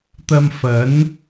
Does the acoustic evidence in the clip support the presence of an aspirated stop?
no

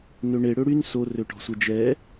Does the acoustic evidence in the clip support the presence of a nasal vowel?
no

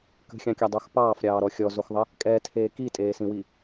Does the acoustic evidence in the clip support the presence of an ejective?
yes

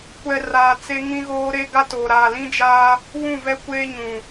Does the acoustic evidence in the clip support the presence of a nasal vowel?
yes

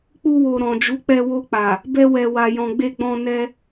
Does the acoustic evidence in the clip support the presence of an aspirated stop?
no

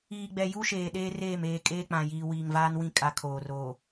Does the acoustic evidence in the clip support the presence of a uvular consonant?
no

